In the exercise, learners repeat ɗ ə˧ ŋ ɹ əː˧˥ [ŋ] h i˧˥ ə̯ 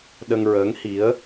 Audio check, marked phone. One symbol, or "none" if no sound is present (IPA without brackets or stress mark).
ŋ